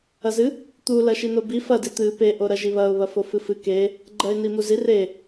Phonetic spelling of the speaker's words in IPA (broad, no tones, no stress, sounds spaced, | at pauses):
ɐ z ɨ | t̪ u l ɐ ʃ i n o b i f ɐ d i t̪ ɨ p e ʔ o ɾ ɐ ʒ i β ɐ ʊ̯ β ɐ f o f ɨ f ɨ k e | ɡ͡ǃ ɐ ɪ̯ n i m u z i r e